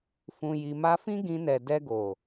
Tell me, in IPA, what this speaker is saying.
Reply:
f ũ˨ j i˨ m a˧ f ĩ˦ ɡ ĩ˧ n ɛ˨ d ɛ˧ ɡ o˨

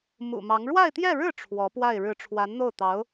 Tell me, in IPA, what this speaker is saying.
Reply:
m ṵ˨˩ m ɑ˧˥ ŋ ɻ w a˥˧ ɪ̯ t̪ j ɛ˥˧ ɻ ɻ̩˥˩ ʈ͡ʂʰ w ɔ˧˥ p w a˥˩ ɪ̯ ɻ ɻ̩˧˥ ʈ͡ʂʰ w a˧˥ n n̪ o˥˩ ʊ̯ t̪ ɑ˧˥ ʊ̯

